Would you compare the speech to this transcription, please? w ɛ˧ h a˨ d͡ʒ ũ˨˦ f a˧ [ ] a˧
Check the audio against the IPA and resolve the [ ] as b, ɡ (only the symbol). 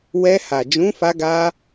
ɡ